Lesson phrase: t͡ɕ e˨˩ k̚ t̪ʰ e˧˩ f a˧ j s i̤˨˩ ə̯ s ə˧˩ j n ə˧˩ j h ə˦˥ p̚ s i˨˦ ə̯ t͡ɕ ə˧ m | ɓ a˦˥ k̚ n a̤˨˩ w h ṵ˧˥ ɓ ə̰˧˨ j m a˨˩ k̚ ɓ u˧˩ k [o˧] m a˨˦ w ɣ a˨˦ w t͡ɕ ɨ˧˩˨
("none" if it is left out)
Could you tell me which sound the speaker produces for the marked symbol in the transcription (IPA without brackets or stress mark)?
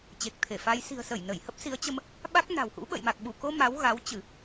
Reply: o˧